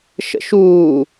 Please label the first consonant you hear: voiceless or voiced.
voiceless